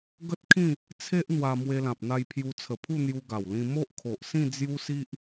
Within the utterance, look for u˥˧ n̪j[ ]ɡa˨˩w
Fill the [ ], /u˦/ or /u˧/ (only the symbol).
u˧